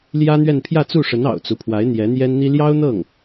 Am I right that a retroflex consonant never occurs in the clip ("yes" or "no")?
no